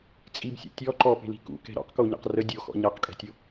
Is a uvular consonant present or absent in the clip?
present